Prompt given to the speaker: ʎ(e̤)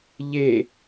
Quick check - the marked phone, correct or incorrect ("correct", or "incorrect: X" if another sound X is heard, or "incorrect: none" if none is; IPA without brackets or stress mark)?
incorrect: e